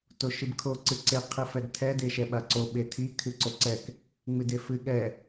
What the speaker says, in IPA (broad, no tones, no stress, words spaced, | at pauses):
toʃɨbkʰo ǀɨǀe qʰɨfɛdtʰɛ deʃɛɓaǀo ɓetʰi kʰɨǀoǀɛk | ŋ͡mɨdefɨ ɠɛ